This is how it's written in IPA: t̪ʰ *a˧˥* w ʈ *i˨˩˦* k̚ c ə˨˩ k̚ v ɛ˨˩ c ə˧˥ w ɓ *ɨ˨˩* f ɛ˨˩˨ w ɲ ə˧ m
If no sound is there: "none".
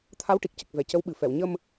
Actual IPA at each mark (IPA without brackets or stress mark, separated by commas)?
a˧˥, i˨˩, ɨ˨˩